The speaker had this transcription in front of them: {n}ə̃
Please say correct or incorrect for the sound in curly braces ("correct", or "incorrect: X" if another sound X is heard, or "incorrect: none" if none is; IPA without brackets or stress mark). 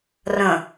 incorrect: r